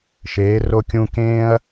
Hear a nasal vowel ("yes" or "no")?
yes